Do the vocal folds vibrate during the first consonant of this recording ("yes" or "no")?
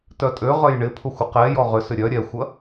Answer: no